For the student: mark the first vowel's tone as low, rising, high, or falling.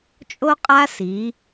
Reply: high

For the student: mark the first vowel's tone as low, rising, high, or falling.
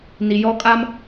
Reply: low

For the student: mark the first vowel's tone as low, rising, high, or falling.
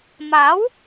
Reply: rising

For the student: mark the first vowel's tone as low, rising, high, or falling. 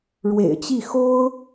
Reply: low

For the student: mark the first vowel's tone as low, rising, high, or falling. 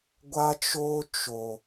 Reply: high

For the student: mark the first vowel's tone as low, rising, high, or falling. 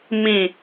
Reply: falling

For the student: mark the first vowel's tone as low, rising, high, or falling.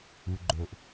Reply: low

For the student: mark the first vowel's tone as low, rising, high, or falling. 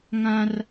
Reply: high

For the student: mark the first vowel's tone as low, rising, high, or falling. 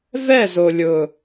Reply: falling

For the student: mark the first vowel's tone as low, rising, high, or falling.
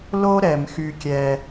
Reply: high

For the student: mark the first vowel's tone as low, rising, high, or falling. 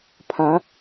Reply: rising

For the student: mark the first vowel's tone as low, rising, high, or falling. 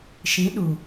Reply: rising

